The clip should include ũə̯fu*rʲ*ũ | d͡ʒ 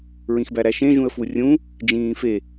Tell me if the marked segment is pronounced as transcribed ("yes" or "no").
yes